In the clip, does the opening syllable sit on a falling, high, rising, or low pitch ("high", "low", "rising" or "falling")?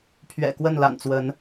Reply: low